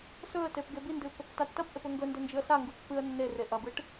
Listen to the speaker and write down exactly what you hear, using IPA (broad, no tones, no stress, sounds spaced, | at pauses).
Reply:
s ɵ ə̯ t e p ɡ e b i n d ɨ p | t a tː ɐ p ʔ e p ɵ ŋ ɡ ɵ n d ɵ n d͡ʒ ɨ ə̯ s a ŋ ɡ u pː ɨ ə̯ nː e r e ʔ ɐ b ɨ ʈ